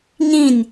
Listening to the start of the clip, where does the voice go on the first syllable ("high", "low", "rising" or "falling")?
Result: falling